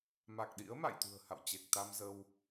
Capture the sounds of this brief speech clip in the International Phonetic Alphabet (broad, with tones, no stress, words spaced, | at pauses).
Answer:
ma˨˩k̚ɗḭ˧˥ə̯ ma̰˧˨jt̪ṳ˨˩ə̯ha̰˧˨wt͡ɕe˨˩k̚ t̪a˧mzə˧w